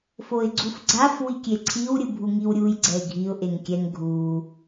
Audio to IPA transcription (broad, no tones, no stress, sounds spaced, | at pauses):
f o ɪ̯ ɡ͡ǀ u f ɡ͡ǀ a f w i kʲ e ǀʰ i w ɾʲ ɯ bʱ u ŋ i w ɾʲ u j ɡ͡ǀ ɛ ɪ̯ ɡʱ i ʊ̯ ʔ e ŋ kʲ ɛ ŋ ɡʱ u